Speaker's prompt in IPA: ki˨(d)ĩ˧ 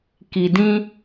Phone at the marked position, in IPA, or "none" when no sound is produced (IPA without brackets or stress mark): d